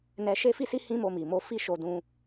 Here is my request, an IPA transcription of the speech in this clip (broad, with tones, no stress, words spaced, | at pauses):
nɛ˧ ʃe˦fi˦si˦ hĩ˦mo˧mi˨mo˧ fi˦ʃo˧dũ˧